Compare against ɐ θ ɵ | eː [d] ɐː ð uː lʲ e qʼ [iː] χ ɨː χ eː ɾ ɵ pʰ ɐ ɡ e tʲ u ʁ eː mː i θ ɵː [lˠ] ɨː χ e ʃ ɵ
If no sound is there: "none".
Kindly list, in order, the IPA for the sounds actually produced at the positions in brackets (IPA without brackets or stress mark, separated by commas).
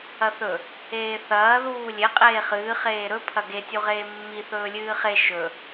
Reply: θ, eː, lʲ